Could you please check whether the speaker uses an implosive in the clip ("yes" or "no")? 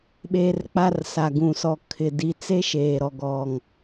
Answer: yes